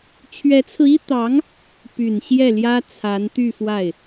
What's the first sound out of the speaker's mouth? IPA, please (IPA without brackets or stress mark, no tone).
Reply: t͡ɕʰ